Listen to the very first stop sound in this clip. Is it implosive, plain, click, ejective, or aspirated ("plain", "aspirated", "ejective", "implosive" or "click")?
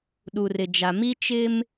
implosive